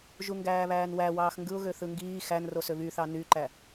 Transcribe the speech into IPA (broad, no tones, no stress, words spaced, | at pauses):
ʒuŋɡæːβæːnwæ wɑːxŋɡɯʊ̯ɣø θɯŋɡiː xænro søβyθɑ nyǃæ